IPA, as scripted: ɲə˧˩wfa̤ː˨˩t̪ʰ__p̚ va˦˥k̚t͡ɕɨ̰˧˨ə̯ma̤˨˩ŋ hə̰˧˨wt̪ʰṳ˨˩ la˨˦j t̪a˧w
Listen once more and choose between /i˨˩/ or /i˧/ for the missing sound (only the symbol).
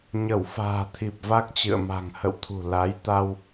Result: i˨˩